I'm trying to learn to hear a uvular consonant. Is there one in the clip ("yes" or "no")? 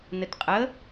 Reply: yes